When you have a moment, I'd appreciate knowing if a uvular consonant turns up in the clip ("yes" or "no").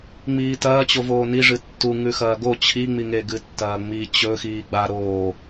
no